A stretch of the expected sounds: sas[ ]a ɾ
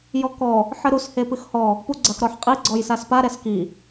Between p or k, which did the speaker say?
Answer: p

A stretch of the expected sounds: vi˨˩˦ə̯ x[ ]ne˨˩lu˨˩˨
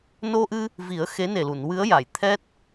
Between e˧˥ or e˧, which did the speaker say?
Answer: e˧˥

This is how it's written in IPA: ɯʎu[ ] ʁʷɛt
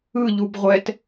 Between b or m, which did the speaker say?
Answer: b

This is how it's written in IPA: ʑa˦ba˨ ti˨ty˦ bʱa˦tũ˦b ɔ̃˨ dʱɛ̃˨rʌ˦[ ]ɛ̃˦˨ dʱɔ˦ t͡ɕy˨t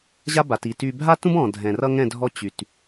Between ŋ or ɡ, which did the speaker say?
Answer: ŋ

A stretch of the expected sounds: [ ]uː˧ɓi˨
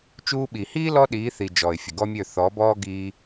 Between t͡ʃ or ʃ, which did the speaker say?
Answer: t͡ʃ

